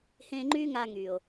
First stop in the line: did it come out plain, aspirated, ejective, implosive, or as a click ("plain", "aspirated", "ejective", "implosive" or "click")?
click